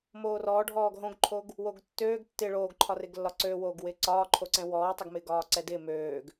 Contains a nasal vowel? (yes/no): yes